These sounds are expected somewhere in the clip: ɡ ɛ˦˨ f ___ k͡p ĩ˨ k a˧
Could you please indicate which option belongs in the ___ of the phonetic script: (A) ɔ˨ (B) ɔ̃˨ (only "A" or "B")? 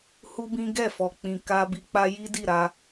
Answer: A